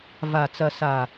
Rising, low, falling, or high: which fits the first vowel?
low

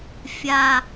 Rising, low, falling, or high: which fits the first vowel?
low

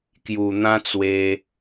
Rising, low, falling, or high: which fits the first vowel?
low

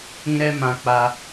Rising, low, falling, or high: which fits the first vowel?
high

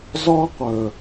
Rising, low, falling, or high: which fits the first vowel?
high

